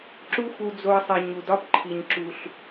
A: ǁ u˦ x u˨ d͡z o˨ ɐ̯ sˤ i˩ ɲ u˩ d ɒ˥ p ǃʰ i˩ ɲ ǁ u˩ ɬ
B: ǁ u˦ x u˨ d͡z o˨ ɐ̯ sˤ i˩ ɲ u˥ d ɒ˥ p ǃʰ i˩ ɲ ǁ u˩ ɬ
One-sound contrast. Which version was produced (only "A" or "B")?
A